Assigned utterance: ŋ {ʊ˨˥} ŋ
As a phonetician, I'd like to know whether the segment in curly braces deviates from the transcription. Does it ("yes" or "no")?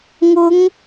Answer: yes